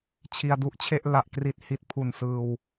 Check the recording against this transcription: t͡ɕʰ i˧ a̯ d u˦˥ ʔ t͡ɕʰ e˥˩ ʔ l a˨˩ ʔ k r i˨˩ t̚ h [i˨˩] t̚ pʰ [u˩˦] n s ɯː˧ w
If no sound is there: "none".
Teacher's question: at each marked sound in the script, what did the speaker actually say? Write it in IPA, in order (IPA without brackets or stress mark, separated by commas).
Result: i˨˩, u˨˩